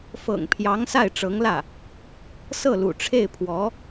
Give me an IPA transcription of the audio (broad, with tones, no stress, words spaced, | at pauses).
fɤ̰˨˩ŋpʰjɑ˧˥ŋ sa˥˩ɪ̯ʈ͡ʂɤ˧˥ŋlä˥˩ | sɤ˥˩lṵ˨˩ʈ͡ʂʰe˥˩ɪ̯pʰwɔ˧˥